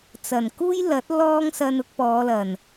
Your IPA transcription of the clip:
t͡sɐ˨˩nkuː˥jlɐ˨˥t̚ lɔː˥ŋsɐ˧n ʊ˧k̚pɔː˨˧lɐ˨˩n

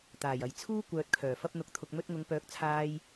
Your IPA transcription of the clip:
t̪aː˨˩jɐ˨j t͡sʰuː˥ kʷœː˧t̚kʰœː˨˩fɐ˥p̚n̪ʊ˧k̚ t̪ʰʊ˨k̚mɵ˧t̚ŋʊ˨˧ŋpœː˨˥k̚ t͡sʰaː˧j

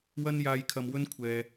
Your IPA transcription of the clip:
wɐ˥njaː˧j kʰɐ˧mwɵ˥nkʷʰɛː˨

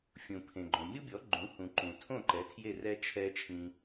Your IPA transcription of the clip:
fʲũ˩pʰẽ˩ɡ͡ǃõ˩ mʲu˥bʲɔ˩˥ɡ͡ǃũ˩˥hũ˩ ǃũ˩tʰõ˥˩ ǃɛ˩˥tʰje˥˩rɛ˥ t͡ʃʰɛ˥t͡ʃʰĩ˧

